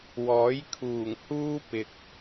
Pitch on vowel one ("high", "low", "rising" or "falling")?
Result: rising